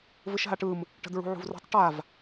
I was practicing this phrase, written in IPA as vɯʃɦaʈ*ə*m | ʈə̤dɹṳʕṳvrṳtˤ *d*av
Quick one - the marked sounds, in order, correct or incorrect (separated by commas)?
incorrect, incorrect